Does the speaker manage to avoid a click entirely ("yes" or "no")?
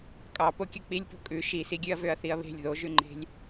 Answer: no